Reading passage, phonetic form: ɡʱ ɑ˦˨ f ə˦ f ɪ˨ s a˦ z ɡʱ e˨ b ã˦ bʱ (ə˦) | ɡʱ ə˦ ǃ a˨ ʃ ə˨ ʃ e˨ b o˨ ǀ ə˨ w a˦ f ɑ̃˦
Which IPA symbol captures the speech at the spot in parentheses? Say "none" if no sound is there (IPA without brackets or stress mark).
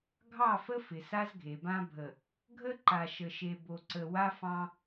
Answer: ə˨